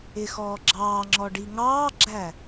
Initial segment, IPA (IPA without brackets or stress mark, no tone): ɪ